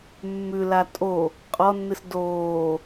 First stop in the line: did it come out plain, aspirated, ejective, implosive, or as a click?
ejective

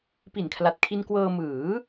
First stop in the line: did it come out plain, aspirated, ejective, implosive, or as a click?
plain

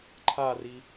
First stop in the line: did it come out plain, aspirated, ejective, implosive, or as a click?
click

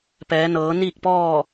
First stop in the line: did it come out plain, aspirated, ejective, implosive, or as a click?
plain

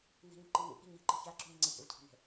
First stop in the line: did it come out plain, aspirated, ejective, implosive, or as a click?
click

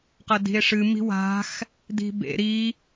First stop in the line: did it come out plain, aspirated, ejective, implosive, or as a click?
plain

